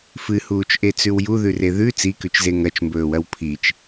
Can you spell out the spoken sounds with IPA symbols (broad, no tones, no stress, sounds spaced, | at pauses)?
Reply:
f ɨ h uː t͡ʃ ʔ e t͡s ʉ w j u ð ʉ r e ð ʉ t͡s i k ʉ t͡ʃ z e ŋ ɐ t͡ʃ m b ɵː w ɐ w pʰ i t͡ʃ